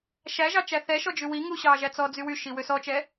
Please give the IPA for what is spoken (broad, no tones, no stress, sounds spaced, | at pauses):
ʃ æ ʒ ɑ t͡ʃ æ θ ɛ ʃ ɔ d͡ʒ ʉ w i ŋ u ɕ ɑ ʒ æ t͡s ɔ d͡z y w y ʃ i w ø s ɔ t͡ʃ ɛ